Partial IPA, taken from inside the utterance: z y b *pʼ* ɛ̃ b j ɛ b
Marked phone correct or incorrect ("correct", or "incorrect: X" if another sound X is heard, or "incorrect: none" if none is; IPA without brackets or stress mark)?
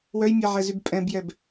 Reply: correct